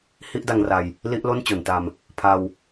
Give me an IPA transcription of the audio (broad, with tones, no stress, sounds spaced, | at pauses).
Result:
h i˥˩ ʔ d a˧ ŋ r a˧ j | l i˥˩ ʔ l o˥˩ n t͡ɕ o˩˦ n t a˧ m | pʰ a˧ w